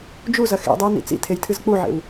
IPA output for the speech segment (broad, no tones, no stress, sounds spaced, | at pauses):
d͡ʒ u z ɐ x ḛ dˤ ɨ w n ḭ t͡s ḭ tʰ e j tʰ ɨ z k͡p u ʕ ḛ w